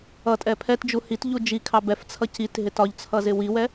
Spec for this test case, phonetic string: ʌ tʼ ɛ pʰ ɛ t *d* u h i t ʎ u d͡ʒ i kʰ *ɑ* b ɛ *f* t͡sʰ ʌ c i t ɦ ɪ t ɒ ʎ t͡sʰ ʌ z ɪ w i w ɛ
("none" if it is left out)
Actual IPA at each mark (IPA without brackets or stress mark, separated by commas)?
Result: d͡ʒ, ɑ, f